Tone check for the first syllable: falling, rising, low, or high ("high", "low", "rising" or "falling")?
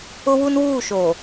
high